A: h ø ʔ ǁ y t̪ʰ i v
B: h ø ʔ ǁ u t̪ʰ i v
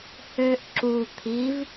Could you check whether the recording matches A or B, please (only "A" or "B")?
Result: B